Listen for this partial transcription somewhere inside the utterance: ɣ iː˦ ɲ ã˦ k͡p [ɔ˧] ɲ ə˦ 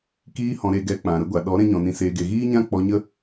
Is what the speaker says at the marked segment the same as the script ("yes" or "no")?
yes